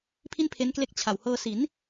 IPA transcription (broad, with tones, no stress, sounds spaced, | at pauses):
pʰ i˥˩ n pʰ e˦˥ n k l e˦˥ k̚ t͡ɕʰ a˨˩ w h ɤː˧ s i˩˦ n